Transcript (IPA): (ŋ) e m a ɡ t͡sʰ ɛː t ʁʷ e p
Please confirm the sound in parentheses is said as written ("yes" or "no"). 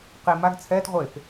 no